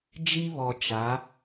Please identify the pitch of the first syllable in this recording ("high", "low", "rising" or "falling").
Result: high